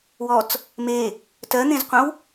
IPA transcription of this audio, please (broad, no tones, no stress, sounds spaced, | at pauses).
w ɔ t͡s | m e | t ɜ n̪ ẽ z qʷ ə̃ w